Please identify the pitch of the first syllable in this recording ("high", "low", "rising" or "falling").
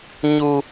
high